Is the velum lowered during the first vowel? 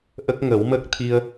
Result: no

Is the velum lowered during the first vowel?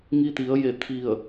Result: no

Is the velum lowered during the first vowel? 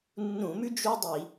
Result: yes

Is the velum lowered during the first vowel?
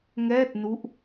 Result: no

